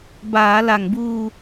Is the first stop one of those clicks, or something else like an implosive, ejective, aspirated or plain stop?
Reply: plain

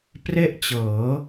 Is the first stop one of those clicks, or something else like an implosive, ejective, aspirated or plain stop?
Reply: plain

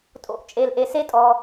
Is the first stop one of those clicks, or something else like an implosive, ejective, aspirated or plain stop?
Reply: ejective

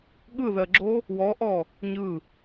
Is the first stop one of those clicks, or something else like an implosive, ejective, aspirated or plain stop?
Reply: implosive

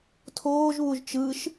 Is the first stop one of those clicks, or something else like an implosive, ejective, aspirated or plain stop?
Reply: aspirated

